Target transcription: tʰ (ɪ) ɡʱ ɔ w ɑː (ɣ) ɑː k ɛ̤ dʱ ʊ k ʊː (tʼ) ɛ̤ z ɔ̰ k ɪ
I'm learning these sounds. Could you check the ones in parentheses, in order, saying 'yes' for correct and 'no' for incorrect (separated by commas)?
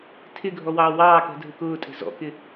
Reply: yes, no, yes